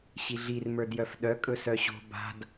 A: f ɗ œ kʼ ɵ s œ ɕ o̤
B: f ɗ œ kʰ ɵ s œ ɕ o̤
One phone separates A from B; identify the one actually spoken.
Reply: A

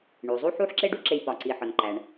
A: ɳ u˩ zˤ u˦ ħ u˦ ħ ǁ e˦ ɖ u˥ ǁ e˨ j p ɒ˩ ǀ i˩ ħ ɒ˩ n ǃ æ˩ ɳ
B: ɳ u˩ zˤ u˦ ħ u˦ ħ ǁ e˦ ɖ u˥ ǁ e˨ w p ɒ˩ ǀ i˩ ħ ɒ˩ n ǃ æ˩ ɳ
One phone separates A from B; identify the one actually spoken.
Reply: A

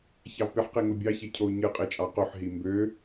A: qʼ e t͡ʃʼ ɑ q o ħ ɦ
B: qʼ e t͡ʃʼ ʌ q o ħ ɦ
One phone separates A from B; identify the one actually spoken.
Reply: A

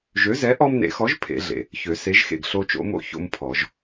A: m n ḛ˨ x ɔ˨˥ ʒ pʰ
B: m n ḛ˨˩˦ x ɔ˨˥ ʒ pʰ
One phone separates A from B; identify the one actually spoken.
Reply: B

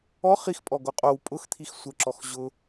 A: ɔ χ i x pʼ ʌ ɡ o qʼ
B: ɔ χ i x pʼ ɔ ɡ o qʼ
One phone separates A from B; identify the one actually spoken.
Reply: B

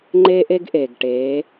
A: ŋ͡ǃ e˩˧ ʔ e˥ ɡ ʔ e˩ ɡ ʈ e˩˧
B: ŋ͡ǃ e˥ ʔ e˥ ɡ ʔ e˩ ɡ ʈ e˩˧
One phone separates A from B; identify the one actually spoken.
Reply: B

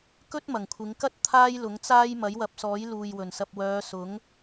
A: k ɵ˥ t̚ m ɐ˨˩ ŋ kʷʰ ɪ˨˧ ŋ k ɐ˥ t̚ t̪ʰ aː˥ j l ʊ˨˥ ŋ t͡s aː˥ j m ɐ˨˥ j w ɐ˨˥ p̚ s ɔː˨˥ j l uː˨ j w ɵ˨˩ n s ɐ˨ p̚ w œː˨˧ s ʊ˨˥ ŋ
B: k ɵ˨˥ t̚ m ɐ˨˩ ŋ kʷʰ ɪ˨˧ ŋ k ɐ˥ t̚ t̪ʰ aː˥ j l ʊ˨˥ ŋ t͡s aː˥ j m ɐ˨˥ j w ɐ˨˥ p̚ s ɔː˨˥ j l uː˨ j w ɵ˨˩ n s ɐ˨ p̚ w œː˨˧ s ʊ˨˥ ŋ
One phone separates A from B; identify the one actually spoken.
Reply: A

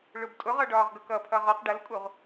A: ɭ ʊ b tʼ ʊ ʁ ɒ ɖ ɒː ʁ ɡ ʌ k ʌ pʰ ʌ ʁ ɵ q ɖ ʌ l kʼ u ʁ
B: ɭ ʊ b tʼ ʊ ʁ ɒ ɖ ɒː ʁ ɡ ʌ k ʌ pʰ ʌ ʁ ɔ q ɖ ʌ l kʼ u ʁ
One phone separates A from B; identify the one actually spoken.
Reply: B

